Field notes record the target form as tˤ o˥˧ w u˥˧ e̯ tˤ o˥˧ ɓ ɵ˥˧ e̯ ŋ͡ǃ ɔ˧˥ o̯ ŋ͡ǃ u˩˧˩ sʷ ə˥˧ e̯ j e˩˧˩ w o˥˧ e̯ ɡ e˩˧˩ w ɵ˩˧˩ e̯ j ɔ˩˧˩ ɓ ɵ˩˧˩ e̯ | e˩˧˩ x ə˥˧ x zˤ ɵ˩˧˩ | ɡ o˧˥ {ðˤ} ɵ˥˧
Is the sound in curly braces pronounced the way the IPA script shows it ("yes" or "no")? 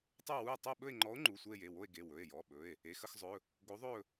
yes